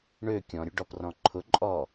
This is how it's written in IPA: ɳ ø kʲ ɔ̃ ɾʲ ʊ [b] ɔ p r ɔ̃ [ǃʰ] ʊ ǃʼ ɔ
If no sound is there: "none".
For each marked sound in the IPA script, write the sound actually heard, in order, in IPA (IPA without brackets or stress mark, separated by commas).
ɖ, ǃʰ